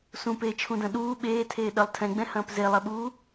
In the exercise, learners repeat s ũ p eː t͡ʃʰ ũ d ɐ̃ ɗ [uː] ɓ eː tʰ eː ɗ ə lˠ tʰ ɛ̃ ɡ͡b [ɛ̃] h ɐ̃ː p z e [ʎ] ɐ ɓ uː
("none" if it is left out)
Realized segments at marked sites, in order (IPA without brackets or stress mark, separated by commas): uː, ɛ̃, lˠ